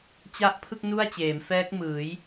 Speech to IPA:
t͡ɕa˦˥ʔpʰɯ˥˩k̚ nu˥˩a̯t͡ɕeː˩˦m fɛː˦˥k̚mɯː˩˦j

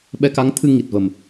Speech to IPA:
ɓɛ˧ka˧˥ŋt̪ʰɨ˧ ŋi˨˩t̚və˨˩m

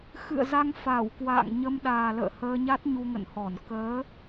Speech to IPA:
xɨ̰˧˨ə̯za˧ŋ fa˧˩w kwa̰ː˧˨ŋ ɲə˧mɗaː˨˩lə̰ː˧˨ həː˧ɲa˦˥t̚ ɲu˧ŋə̰˧˨nhɔ˧˩n kəː˨˦

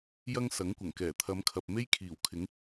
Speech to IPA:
jɐ˥ŋ sɐ˨˥ŋkʷɐ˨˩ŋkɛː˨˩ t̪ʰɐ˨˧mkʰɐ˨p̚ me˥jkʰiː˨˩wkʰɪ˨˥ŋ

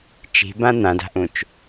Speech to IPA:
t͡ʃi̤bã n̪ãda̤ʔũt͡ʃ

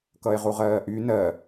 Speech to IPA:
kʌe̯ʁuʁɜːʔy nɜ

